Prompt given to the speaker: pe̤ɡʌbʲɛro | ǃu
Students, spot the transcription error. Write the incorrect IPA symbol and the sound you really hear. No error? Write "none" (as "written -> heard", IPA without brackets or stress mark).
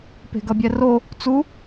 ǃ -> t͡s